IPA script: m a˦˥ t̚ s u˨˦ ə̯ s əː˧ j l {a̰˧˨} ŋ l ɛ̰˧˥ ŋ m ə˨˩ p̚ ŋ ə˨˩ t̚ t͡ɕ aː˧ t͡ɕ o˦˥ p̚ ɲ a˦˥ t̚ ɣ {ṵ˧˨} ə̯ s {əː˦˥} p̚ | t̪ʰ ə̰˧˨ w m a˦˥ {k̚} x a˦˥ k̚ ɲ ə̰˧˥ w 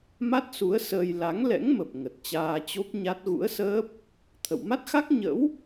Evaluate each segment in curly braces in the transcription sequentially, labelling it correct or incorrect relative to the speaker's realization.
incorrect, incorrect, correct, incorrect

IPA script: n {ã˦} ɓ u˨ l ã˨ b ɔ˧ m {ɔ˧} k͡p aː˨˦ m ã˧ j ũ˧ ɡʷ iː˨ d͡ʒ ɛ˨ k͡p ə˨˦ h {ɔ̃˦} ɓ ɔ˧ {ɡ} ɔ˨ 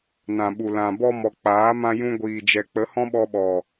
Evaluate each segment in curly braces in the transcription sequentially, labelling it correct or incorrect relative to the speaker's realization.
incorrect, incorrect, correct, incorrect

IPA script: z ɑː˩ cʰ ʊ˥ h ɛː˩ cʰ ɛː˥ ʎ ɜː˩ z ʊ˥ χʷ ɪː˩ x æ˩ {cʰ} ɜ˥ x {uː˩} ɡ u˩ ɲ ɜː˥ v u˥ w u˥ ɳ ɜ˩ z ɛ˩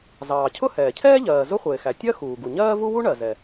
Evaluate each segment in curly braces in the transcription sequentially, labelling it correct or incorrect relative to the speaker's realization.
incorrect, correct

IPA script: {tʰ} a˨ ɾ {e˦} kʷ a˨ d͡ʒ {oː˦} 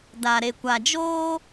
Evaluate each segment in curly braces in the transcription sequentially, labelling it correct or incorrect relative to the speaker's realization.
incorrect, incorrect, correct

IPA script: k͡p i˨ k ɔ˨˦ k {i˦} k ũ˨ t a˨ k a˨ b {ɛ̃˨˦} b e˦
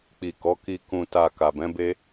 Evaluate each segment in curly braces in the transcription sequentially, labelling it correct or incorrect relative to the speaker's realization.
incorrect, correct

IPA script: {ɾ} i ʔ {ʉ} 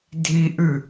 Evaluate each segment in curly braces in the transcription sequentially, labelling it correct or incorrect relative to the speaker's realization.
incorrect, correct

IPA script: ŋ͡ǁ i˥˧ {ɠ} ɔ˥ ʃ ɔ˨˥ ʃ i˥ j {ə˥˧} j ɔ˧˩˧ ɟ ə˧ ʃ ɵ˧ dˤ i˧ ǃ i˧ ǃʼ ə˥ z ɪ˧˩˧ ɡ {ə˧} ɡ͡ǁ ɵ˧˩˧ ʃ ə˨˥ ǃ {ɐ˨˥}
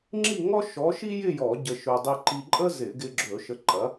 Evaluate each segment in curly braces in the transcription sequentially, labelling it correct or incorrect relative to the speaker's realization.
incorrect, incorrect, incorrect, correct

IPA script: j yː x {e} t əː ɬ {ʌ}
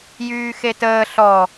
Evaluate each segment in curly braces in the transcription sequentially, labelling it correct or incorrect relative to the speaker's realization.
correct, incorrect

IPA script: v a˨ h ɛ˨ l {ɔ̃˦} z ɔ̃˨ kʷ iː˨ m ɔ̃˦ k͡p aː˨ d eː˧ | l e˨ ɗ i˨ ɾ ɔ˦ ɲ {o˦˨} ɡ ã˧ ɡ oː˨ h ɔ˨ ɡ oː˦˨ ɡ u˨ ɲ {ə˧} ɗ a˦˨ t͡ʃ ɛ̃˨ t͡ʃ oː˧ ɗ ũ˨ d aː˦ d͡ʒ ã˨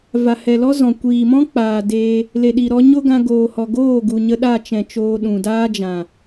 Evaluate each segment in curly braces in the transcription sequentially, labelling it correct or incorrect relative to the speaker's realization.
incorrect, incorrect, correct

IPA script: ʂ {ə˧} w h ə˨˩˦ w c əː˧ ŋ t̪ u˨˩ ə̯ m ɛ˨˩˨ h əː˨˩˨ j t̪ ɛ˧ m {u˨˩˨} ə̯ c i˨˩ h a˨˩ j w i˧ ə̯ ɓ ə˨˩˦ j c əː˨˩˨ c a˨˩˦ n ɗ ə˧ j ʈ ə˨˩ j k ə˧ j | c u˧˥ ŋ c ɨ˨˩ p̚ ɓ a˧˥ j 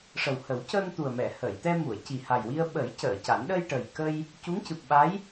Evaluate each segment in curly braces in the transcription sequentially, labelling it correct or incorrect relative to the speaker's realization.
incorrect, correct

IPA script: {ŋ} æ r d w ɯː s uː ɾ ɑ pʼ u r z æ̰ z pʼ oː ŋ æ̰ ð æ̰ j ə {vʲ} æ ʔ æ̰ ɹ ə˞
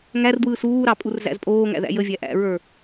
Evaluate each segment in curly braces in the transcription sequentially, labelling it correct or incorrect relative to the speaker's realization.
correct, correct

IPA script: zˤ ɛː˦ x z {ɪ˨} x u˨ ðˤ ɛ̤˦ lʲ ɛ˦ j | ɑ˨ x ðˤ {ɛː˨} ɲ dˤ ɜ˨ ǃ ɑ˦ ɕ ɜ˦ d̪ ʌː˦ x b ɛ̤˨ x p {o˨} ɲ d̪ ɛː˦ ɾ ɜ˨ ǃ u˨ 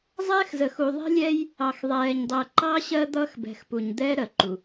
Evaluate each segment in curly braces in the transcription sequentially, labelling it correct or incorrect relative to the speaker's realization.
incorrect, correct, incorrect

